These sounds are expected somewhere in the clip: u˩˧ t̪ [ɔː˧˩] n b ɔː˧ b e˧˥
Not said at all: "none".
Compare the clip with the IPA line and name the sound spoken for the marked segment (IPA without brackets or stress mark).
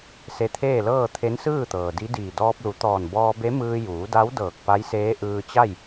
ɔː˧˩